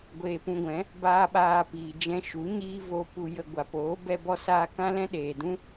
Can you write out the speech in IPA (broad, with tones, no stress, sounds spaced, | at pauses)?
ɡʷ eː˧ p ũ˧ ɡʷ ɛ̃˨˦ | b aː˦ ɓ aː˧ p iː˨ d͡ʒ ɛ̃˧ ʃ u˨˦ ɲ iː˦ v o˧ p u˧ j ə˧ ɡʷ a˨ p oː˨˦ b ɛ˦ b ɔ˦ s aː˦ k ã˦ l ɛ̃˦ ɗ eː˨ d ũ˦